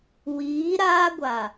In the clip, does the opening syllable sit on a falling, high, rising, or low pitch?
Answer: rising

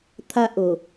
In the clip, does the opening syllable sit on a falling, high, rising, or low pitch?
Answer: low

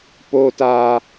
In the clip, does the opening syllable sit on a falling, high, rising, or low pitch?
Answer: high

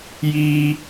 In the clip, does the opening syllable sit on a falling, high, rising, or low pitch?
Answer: high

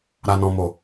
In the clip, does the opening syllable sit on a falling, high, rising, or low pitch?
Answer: low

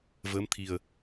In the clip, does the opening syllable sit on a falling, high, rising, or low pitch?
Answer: rising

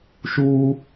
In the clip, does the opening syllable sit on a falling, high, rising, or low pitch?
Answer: high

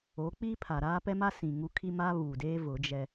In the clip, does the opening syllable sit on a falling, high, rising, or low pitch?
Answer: rising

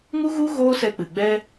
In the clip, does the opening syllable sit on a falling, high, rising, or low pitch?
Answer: high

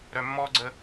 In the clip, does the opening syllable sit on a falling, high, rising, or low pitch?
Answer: low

